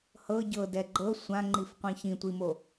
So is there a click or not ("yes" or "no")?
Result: yes